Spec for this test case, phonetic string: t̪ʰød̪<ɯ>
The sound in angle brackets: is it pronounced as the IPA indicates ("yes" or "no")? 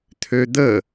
no